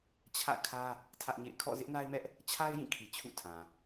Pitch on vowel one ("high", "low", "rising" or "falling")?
falling